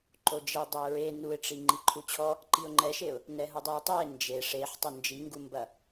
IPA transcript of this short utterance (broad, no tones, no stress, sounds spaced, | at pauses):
ǃ o d͡ʒ e dˤ e ʊ̯ ɹ e n u ɪ̯ ʈ͡ʂ i ŋ͡ǃ i ǃʰ u t͡ɕʰ ɔ | ǃ i ʊ̯ ŋ͡ǃ ɛ ʃ e ʊ̯ | n ɛ ɦ u dˤ i ʊ̯ tˤ ɛ ɪ̯ n d͡ʒ e ʂ e ħ tˤ o n d͡ʒ i ŋ ɡ u m b ɐ